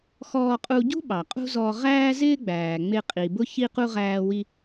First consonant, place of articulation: velar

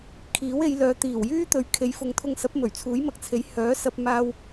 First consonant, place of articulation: velar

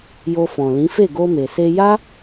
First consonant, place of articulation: palatal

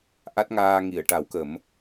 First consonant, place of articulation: glottal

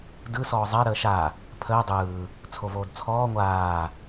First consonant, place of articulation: alveolar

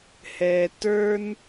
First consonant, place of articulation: glottal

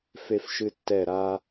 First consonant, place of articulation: labial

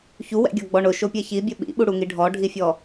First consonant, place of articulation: palatal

